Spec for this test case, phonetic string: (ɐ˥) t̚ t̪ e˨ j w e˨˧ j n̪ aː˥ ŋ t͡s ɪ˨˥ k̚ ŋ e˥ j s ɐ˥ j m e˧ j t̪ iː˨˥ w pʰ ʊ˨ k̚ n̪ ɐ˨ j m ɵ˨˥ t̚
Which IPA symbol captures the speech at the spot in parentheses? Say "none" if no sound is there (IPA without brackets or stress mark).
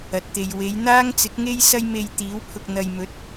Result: ɐ˨